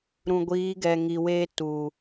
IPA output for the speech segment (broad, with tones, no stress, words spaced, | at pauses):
ɾũ˨ɡʷiː˨˦ɡɛ˨ ŋi˨weː˦tuː˨